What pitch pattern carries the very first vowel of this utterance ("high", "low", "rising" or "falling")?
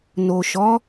low